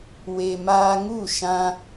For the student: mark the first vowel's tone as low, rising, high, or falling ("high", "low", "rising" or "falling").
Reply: low